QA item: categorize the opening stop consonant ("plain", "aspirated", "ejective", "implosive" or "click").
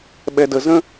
implosive